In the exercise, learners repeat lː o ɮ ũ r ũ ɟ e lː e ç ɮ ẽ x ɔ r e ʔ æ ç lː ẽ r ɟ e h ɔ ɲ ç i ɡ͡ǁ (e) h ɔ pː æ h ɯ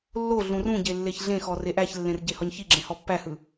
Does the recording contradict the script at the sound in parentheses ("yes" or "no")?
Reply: yes